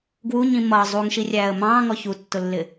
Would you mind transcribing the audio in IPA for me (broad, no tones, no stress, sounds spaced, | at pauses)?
ɡ w u ɲ ĩ m ʌ zˤ u ŋ ʃ i rʲ æː ə̯ m ɑ̃ː ŋ ɔ ç u tː ʊ lː ɪ